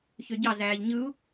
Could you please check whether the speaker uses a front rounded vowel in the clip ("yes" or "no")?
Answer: yes